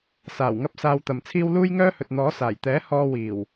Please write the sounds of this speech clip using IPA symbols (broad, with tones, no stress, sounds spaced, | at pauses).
s aː˨˩ w ŋ ɐ˥ p̚ s aː˧ w t̪ ɐ˨ m t͡sʰ iː˥ w l uː˥ j ŋ œː˥ h ɵ˨ t̚ n̪ ɔː˨˥ s aː˨˩ j t̪ ɛː˨˥ h ɔː˥ w iː˨˩ w